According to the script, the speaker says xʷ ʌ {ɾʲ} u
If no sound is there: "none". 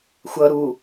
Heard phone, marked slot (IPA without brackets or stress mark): ɾ